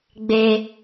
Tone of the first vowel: low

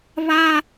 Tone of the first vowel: high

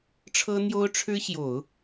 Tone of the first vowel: high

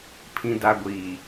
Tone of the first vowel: low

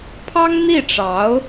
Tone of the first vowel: high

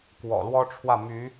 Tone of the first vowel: low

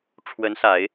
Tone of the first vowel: rising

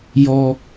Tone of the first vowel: high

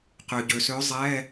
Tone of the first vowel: low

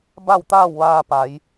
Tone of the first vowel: falling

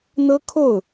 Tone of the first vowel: high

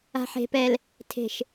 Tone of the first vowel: low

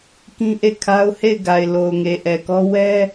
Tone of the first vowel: high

